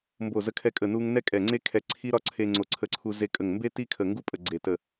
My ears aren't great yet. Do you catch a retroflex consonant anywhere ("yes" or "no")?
no